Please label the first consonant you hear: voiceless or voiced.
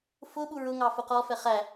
voiceless